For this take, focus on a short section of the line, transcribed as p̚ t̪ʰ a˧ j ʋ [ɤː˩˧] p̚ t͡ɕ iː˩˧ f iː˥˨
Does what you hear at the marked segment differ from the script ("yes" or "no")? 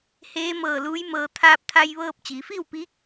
yes